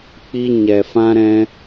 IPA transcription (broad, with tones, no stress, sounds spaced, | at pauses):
k͡p i˦ ɲ ɛ˧ f ã˦ ɾ ɛ̃˦